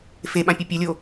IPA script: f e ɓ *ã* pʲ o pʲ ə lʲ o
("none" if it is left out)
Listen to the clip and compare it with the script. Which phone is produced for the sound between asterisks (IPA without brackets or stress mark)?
ã